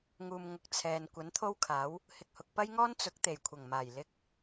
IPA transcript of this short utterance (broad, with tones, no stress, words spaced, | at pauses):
ŋuː˨m ŋʊ˨k̚ t͡sʰɛː˨n kʷɐ˨˥nt̪ʰo˥wkʰaː˨˥w | hɪ˨k̚hʊ˨k̚pɐ˥jŋɔː˥n t͡sʊ˨˥k̚t̪e˨˩jkʷʰɐ˨˩ŋmaː˨˩j lɪ˧k̚